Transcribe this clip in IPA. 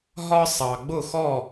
ɦ ɒ˥ sˤ ɑ˧ ɡ͡b ʊ˥˧ x ɔ˥˧

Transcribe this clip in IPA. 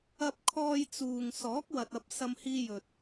ɐ˧ p̚ kʰ ɔː˧ j t͡s uː˨ ŋ s ɔː˨˥ k̚ w ɐ˨ t̚ ɐ˧ p̚ s ɐ˧ m h iː˧ j ɵ˨ t̚

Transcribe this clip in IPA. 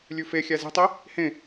lʲ ʉ f e xʲ æ z e̤ tˤ i | h ẽ

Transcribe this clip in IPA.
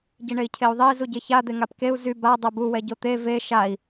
ɟ i ɳ e i̯ cʰ e u̯ ðˤ e i̯ z u ɟ e ç a d̪ e ŋ a p k e u̯ z y b a dˤ ɛ b u w ɛ ɟ o t̪ e v e ʃ a i̯

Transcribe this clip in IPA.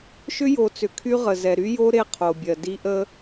ʃ ʏ˦ j o˨ t͡s ʏ˨ kʰ y˦ ʁ ə˨ z ɛ˨ ɾ y˦ j o˦ ɾ e˦ qʰ o˨ bʲ ɜ˨ d i˦ ʔ ə˦

